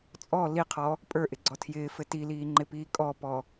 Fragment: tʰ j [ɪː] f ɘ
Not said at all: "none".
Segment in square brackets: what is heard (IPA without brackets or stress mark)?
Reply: ɪː